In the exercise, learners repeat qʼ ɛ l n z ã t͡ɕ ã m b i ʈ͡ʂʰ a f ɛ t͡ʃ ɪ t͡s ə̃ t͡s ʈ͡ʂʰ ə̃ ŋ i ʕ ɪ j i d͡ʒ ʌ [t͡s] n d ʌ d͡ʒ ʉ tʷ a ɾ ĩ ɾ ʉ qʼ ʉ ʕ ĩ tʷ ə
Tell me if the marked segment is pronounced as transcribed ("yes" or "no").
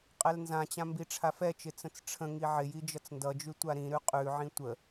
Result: yes